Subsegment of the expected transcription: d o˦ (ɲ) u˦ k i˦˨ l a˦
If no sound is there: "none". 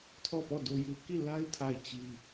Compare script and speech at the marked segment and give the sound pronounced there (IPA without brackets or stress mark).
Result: j